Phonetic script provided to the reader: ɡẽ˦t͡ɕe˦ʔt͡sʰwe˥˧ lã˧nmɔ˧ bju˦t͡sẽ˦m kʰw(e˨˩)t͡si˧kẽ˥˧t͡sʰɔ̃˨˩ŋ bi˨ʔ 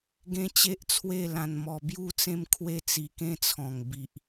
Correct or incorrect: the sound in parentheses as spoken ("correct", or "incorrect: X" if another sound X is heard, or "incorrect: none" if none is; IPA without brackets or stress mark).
incorrect: e˥˧